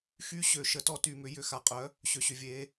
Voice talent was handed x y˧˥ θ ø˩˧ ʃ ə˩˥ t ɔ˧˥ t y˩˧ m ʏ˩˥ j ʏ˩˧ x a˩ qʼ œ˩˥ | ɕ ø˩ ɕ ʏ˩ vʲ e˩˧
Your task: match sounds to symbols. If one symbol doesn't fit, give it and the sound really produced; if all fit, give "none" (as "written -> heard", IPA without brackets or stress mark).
θ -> ɕ